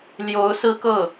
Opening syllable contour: rising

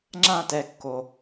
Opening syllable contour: falling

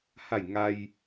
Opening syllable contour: falling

